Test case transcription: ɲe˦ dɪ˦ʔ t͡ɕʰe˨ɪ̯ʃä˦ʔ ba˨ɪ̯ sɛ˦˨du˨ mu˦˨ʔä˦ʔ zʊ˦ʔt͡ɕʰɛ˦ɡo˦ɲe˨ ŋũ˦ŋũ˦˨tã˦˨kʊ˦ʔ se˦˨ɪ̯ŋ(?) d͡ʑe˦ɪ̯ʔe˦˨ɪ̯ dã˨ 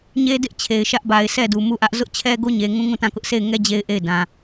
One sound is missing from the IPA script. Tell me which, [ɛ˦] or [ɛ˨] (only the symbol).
ɛ˦